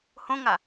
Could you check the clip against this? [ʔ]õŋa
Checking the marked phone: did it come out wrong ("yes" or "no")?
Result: yes